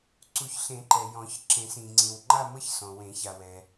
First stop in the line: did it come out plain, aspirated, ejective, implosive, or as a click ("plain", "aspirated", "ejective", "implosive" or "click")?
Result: click